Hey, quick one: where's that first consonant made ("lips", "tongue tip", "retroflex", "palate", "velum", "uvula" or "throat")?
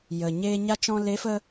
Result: palate